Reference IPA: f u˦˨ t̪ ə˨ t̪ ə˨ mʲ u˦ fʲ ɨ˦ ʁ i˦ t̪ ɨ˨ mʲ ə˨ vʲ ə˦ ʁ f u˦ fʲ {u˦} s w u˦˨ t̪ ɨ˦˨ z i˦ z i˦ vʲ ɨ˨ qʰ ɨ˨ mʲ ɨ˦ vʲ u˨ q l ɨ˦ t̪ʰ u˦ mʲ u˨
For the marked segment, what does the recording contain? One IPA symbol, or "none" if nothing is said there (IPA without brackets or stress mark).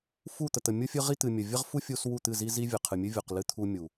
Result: u˦